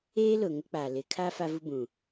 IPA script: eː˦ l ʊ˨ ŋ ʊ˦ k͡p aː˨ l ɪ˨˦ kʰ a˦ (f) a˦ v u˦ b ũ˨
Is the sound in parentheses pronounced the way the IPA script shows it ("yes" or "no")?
yes